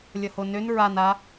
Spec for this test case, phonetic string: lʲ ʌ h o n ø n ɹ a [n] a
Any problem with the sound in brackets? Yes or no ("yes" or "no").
no